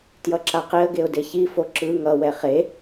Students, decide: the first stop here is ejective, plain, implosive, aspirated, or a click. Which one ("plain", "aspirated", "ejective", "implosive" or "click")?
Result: plain